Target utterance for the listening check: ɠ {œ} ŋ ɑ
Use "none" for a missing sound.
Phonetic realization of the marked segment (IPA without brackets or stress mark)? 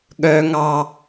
œ